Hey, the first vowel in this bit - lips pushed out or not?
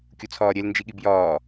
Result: yes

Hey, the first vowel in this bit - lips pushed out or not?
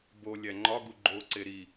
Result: yes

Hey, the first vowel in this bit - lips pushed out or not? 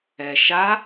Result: no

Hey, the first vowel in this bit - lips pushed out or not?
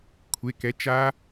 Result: no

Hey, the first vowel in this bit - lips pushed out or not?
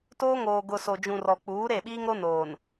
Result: yes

